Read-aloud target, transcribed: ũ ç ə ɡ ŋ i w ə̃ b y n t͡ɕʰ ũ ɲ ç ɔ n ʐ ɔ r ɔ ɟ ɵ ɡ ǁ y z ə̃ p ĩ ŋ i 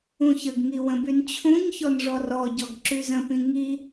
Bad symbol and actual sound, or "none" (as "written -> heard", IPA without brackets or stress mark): ɵ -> ɔ